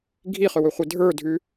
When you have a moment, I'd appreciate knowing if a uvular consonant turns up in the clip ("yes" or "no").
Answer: yes